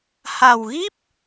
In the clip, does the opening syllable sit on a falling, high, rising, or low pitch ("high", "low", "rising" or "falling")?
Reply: low